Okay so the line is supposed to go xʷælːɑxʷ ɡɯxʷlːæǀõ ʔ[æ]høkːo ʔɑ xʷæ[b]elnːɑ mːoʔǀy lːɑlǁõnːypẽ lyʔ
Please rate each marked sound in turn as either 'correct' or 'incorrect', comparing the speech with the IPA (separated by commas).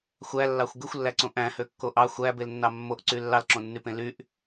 incorrect, correct